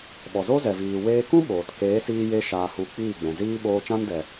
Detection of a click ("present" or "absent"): absent